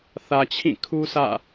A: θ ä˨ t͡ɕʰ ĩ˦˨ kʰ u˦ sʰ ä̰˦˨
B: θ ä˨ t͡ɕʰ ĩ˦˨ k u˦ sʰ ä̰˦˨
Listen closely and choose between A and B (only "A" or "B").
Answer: A